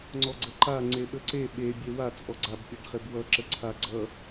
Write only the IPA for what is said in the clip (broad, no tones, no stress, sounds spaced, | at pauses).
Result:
ŋ͡ǀ ɔ ɡ͡ǀ ə ǃ a ŋ͡ǀ e ɓ ə ǀ e ɓ e bʲ e w a t͡sʼ ɔ ɡ͡ǀ a b pʲ a ɖ χ e b w ʌ ǁ ə ǀʰ a ɡ͡ǀ ʌ